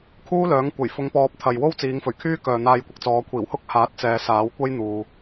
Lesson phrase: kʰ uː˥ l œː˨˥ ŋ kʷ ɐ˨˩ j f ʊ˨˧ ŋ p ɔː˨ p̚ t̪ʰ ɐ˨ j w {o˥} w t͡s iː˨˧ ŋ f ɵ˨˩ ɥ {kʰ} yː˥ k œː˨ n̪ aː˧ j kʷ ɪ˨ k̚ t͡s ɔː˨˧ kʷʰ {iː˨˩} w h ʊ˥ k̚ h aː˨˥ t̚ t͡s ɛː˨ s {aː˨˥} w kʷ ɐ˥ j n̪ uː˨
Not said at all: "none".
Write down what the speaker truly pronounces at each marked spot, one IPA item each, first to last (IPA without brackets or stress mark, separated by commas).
o˥, kʰ, iː˨˩, aː˨˥